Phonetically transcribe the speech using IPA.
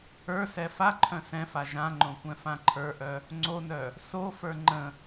ə˞ s ɛ f a ǃʰ œ̃ s ɛ̃ f a ʒ ã ŋ͡ǃ õ kʷ ɛ̃ f ã ǃʰ ə˞ ʔ œ | ŋ͡ǀ o n œ | s o f ə˞ ŋ͡ǃ ə̃

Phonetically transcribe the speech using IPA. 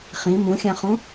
χ ĩ m ũ xʲ ã χ ũ

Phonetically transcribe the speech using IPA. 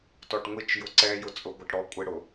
t ɔ ʈ ŋʷ i t͡ʃ j ʊ ǀ ɛ j ʊ t͡sʼ ʊ ɡʷ ʌ ʈ ɽ ɔ kʷʼ ɪ ɽ ʊ

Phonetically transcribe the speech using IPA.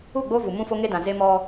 u˦˨ ɡ͡b o˦ v u˨ m ũ˦ f o˦ ŋ e˦ d ã˨ z e˦ m ɔ˦

